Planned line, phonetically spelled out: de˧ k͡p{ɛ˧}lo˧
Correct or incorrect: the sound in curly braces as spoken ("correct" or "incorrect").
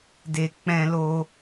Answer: incorrect